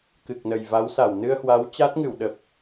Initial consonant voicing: voiceless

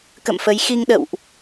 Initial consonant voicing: voiceless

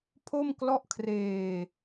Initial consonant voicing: voiceless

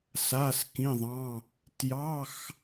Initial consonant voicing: voiceless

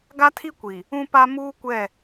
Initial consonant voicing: voiced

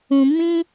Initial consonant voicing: voiced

